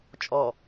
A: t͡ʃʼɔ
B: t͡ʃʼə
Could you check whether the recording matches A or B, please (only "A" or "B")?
A